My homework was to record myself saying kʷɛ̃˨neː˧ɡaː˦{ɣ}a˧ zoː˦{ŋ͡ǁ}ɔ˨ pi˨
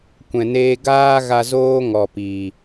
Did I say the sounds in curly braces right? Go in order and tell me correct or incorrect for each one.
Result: correct, incorrect: ŋ

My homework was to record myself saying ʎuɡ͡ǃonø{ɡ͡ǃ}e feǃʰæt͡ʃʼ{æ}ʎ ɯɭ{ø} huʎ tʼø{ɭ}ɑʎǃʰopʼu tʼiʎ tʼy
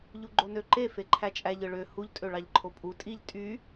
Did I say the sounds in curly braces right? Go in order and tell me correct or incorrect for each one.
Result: incorrect: ǃ, correct, correct, correct

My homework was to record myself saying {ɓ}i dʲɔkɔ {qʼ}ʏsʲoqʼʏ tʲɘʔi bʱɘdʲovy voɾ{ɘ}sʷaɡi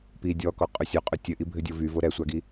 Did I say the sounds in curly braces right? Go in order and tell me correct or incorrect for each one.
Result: incorrect: p, correct, incorrect: ɛ

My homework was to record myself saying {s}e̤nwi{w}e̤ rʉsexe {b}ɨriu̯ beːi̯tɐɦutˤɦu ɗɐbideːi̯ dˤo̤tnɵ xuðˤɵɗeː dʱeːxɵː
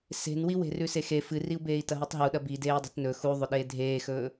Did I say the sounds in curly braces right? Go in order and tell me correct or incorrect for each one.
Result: correct, correct, incorrect: f

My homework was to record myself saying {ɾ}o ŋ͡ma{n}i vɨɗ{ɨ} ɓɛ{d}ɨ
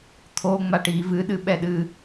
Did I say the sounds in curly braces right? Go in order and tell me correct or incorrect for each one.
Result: incorrect: t̪ʰ, incorrect: ʈ, correct, incorrect: ɗ

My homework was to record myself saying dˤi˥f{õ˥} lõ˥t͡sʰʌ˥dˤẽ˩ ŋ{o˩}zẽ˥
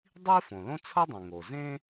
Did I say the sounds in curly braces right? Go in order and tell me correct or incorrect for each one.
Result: incorrect: õ˩, correct

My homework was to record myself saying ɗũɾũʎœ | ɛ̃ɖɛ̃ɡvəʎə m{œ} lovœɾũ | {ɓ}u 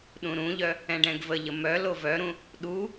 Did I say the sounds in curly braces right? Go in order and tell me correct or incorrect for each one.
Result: correct, incorrect: ɗ

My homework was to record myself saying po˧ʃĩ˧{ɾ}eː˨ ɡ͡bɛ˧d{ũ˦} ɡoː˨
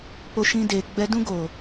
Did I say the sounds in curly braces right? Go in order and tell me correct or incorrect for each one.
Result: incorrect: d, correct

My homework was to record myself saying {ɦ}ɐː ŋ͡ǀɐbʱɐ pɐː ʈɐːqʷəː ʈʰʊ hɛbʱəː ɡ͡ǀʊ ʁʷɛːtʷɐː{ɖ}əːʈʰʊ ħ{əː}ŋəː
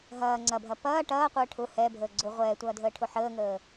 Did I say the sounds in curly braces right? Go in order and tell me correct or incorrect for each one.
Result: correct, incorrect: dʱ, correct

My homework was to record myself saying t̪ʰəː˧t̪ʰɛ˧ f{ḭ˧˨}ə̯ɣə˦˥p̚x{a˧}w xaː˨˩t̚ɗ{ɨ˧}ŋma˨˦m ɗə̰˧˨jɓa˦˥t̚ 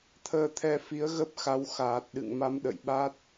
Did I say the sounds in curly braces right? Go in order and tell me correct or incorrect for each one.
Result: incorrect: i˨˦, incorrect: a˨˦, incorrect: ɨ̰˧˨

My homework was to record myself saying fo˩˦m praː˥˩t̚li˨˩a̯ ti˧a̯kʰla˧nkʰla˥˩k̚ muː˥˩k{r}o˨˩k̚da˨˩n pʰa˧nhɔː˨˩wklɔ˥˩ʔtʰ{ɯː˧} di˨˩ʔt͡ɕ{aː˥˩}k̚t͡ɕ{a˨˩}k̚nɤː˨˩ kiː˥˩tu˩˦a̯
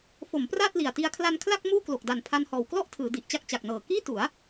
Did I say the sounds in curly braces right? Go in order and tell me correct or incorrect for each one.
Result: incorrect: l, incorrect: ɯː˩˦, incorrect: a˥˩, correct

